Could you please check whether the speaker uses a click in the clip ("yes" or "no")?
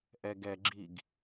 yes